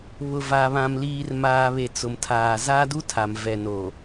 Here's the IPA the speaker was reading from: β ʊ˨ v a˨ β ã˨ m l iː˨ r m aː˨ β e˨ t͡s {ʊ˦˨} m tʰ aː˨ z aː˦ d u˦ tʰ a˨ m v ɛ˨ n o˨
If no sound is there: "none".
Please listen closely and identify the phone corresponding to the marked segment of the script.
ʊ˨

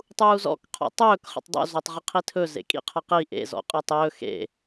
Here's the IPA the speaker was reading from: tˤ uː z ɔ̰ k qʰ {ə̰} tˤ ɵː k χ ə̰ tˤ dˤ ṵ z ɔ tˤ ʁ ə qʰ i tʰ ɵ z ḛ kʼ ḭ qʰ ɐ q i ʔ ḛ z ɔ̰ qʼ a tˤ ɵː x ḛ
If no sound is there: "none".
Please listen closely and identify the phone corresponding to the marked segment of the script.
ɔ̰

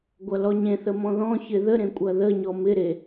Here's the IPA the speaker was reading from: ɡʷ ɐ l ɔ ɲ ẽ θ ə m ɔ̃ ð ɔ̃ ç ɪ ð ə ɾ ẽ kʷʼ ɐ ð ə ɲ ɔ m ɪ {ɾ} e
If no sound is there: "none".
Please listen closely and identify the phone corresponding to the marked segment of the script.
ɾ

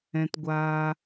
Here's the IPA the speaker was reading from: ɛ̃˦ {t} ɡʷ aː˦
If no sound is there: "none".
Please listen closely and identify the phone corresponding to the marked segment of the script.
t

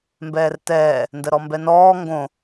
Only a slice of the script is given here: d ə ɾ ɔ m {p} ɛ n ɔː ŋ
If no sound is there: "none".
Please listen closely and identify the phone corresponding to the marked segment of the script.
b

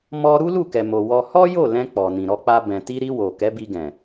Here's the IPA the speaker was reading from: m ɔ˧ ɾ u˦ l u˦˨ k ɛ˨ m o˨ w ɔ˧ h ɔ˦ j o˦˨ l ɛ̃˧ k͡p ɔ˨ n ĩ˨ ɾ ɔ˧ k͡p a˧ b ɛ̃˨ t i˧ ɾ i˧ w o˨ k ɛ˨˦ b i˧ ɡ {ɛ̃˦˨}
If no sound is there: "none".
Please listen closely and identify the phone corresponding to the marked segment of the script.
ɛ̃˨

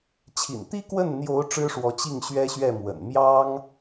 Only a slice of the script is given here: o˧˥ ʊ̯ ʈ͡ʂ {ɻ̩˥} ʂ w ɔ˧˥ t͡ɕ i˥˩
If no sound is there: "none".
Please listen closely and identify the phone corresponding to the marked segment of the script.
ɻ̩˥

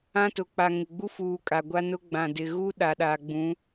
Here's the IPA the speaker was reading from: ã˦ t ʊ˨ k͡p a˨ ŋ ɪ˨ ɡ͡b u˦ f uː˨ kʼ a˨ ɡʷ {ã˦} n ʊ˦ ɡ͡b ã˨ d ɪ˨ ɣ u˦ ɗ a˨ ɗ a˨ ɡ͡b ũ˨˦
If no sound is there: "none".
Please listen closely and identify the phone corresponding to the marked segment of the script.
a˦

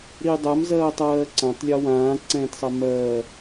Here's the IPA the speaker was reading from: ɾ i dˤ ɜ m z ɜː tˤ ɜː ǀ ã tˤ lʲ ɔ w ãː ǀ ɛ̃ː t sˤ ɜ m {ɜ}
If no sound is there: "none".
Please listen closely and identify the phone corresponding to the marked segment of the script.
ɜː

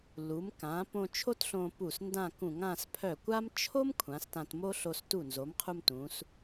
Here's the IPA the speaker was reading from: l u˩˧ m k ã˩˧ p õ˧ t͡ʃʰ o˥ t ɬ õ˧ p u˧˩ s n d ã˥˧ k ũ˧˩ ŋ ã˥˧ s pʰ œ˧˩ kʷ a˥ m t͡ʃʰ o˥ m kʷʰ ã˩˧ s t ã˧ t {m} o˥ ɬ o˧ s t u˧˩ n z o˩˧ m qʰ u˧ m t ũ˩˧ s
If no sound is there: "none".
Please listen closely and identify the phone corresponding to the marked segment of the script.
m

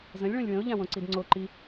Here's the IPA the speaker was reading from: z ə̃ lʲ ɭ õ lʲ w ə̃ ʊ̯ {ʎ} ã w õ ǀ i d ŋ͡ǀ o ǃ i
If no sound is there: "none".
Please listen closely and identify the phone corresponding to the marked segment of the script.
ʎ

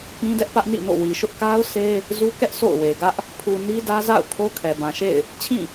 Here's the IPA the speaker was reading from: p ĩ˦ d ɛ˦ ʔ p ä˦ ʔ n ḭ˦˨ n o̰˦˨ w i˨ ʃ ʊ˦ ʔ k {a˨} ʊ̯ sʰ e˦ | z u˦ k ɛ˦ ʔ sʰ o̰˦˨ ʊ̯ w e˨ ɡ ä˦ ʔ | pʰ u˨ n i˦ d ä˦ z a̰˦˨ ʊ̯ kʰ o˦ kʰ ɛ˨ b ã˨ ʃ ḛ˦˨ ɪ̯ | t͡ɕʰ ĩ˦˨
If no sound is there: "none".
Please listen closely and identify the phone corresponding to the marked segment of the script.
a˦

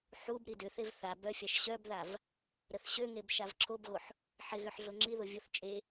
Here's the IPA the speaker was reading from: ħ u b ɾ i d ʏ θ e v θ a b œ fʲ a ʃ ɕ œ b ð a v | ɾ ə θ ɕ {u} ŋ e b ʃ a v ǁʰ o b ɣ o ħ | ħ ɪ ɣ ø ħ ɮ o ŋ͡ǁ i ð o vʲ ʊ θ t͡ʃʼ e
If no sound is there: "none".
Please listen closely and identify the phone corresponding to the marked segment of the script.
ø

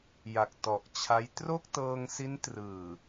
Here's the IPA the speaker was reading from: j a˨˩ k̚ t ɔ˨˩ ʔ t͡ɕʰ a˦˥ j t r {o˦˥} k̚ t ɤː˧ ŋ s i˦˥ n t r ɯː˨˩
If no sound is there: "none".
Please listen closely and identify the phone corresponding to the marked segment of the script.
o˥˩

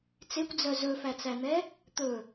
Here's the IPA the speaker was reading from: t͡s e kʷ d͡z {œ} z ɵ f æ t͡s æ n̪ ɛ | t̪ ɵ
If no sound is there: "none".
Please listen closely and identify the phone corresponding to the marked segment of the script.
œ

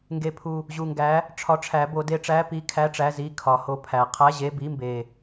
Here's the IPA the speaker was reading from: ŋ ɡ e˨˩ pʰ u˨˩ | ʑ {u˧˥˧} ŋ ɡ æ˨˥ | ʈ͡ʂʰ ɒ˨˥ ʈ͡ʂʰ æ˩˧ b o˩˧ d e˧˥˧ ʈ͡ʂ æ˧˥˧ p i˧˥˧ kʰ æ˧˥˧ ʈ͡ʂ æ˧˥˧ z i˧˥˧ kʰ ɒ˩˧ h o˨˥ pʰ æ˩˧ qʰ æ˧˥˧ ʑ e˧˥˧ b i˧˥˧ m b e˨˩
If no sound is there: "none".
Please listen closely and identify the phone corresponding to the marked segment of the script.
u˨˩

